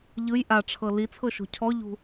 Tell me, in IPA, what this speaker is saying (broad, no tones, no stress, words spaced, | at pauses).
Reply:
ʎɯj ʔaʈ͡ʂʰɤ lit͡sʰɤʃo̤ cʰɔʎṳ